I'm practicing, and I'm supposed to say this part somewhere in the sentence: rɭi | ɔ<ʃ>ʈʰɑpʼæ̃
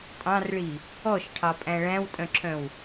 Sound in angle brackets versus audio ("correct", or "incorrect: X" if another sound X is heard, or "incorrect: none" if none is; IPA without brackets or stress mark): correct